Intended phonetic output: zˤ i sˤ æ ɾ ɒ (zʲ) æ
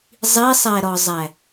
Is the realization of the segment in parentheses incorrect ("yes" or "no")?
yes